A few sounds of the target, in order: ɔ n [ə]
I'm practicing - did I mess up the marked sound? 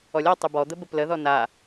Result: yes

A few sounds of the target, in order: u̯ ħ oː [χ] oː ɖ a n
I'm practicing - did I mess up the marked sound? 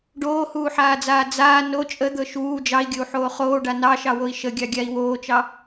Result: no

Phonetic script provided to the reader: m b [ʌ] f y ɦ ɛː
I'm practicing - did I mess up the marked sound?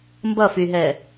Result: no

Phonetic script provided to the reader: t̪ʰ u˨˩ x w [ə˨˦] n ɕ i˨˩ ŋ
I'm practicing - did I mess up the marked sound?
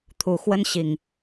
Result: yes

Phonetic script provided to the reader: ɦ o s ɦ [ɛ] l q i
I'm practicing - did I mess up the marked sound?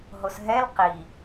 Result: no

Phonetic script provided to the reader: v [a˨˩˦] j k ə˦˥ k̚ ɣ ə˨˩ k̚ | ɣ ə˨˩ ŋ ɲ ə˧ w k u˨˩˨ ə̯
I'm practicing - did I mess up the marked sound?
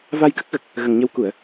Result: yes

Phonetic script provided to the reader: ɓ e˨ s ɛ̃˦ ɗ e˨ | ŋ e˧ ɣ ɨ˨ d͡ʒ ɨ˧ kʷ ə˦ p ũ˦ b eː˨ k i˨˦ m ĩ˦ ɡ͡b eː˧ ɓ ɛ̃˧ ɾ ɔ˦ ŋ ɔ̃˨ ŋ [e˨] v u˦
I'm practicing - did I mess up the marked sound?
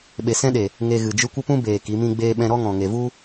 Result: no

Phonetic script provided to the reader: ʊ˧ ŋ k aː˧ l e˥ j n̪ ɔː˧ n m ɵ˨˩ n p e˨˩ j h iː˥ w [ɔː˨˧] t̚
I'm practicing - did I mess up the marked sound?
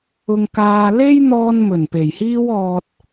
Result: yes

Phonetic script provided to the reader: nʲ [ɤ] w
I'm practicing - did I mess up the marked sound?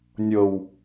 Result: no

